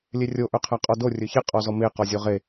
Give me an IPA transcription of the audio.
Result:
lʲ e rʲ o ʔ ɵ qʰ æ qʼ ɔ d o rʲ ɵ ç e qʼ ɔ z ɔ m e q ɔ zʲ o ʁ e

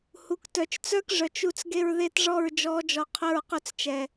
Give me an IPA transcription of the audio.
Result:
h u˨ k t œ˨ t͡ʃ t͡s œ˦ k ʐ œ˨ t͡ʃ u˦ t͡s ɡ e˦ ɹ ð e˦ t ʐ ɔ˦˨ ɹ d͡ʒ ɔ˨˦ d͡ʒ ɔ˨ qʰ ɵ˦˨ ɹ q ɵ˦ t͡s t͡ʃ ɛ˨

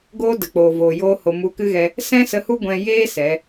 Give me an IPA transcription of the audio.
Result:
ɡ oː˦ d ə˨ k͡p oː˨ v oː˨ j oː˦ h o˧ m u˧ k ɨ˦ ɣ ɛ˧ | s ɛ̃˦ s ə˧ h u˦ ɡʷ ɛ̃˧ j eː˦ s ɛ˨˦

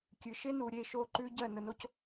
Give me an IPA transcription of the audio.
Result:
kʲ ɨ˩ ʃ e˥ n u˩ ɾʲ e˥˩ ʃ o˥˩ ǃ ʉ˥ ɟ ɜ˥˩ n ə˩˥ n o˥ c

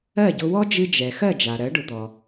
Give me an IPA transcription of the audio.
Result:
ɜ˥˩ ɟ ʊ˧ w ɔ˥ d͡ʒ ɨ˧ d͡ʒ ɛ˩ x ɜ˥˩ d͡ʒ a˩ ɾ ɜ˩˥ ɖ ʊ˩˥ d̪ ɔ˩

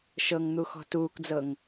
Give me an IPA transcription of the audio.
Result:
ʃ ɤ ŋ n̪ u x ɔ̤ t uː k d͡z ɤ ŋ

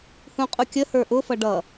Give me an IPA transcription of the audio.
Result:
h ũ qʼ u kʲ ə h ə˞ ʔ ʊ f ʌ ɖ ʌ

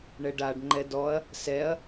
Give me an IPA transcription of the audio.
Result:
ɳ ɛ ɖ a ɖ ŋ͡ǃ ɛ d ɔ ɐ̯ | s ɛ ɐ̯

